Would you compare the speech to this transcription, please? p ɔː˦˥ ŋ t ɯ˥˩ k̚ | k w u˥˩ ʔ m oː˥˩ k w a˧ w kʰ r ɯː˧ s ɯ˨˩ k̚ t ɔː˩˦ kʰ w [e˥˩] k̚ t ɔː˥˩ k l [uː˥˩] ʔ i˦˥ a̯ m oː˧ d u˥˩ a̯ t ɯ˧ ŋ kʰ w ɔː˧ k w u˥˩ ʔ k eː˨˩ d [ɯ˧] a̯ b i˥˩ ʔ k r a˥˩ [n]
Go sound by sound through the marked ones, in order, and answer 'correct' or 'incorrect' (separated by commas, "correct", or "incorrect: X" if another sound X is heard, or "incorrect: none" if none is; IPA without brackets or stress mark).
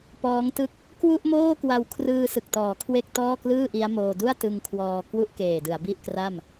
correct, incorrect: ɯː˥˩, incorrect: ɯ˩˦, incorrect: m